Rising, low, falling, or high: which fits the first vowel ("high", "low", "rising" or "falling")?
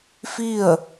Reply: falling